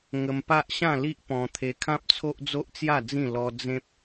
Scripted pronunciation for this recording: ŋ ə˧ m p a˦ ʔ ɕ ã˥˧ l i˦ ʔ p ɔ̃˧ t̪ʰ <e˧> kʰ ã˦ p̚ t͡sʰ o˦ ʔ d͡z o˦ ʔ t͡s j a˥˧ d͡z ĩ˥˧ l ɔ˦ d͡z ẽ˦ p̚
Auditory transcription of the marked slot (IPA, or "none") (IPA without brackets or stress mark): e˧